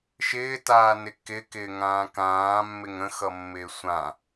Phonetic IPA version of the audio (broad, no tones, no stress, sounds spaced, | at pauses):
ʃ ɪː t aː n ɪ k ɪ k ɪː ŋ ãː k ãː mː ɪ ŋ ə̃ x ʌ mː ɪː sʷ ã